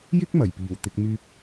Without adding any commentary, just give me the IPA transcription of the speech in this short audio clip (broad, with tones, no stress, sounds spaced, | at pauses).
j ɪ˥ k̚ m ɐ˨˩ j p iː˨˩ w t̪ ɪ˧ k̚ m yː˧ p̚